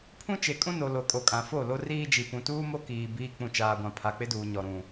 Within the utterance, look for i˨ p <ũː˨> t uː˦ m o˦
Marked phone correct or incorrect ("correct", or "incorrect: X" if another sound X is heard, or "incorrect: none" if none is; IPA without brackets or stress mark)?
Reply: incorrect: ũ˨